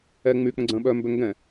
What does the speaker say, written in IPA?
ɛ ŋ͡my k͡pə̃ɡ͡ǀə̃ːɓœmbø ŋɡɛ̃

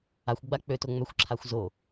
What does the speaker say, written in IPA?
axʷɡ͡ba k͡pøto ŋ͡mœxʷǁʰaxʷ zo

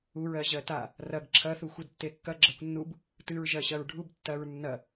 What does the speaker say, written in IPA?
uɹɜʑɜ ta | rɐɡ ǁʰɐθu xʷedtːekːɐ ɡ͡ǁɜkʷnːub | tɨɹʒɜ ɕɐɹɖʱub tːɐɹ nːɐ

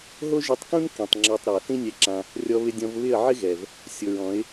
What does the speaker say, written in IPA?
ɦo˦ʒi˧tˤkũ˦n kĩ˨tˤŋ͡ǁɔ˧tˤɾa˨ θĩ˦nʲɛ˧ǁã˧ | rʲɔ˧ βɪ˧dʲɔ̃˧v βɪ˦˨ə̯ʕɪ˦ɣɛ˨v | sʲo˨ɹɔ̃˨˦ɪ̯

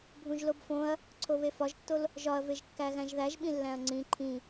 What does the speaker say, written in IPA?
bʱũʒlobfõɐ̯ | ǀʰoβefɒʒtːol | ʒɒɐ̯veʒkːæ ɣæ̃ʒðæʒɓĩlːæ̃ɐ̯ ŋ͡ǀĩ ǃʰĩ

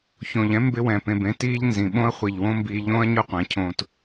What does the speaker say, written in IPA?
çõ˨ʎɛ̃˦ mbɪ˧wɛ̃˨ pẽ˨bẽ˧tiː˧ʎ nzĩ˨ɓõ˦ɐ̯ χʷi˨ʎwõ˦mbiː˧ ʎõː˦ɐ̯ɲʊ˦qʷɛ̃˨˦cʰõː˧t

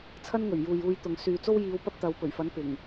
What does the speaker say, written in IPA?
t͡sʰɐ˥nŋɵ˨˩ɥjuː˨j uː˧jt̪ʊ˨ŋ syː˨t͡so˥w jiː˨˧w pɐ˥p̚t̪ɐ˨˧wpɵ˨˩ɥfɐ˨˥n pɪ˨˩ŋ

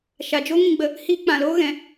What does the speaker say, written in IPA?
ʃa˨d͡ʒo˦ ŋĩ˧ɡ͡bə˧ | hiː˧k͡pã˨loː˦ ɣɛ̃˧

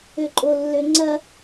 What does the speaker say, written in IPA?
øǃʼolːøŋ͡ǀɐ

